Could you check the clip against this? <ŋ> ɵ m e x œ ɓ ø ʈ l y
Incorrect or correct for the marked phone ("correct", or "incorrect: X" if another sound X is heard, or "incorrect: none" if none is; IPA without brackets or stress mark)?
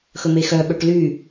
incorrect: x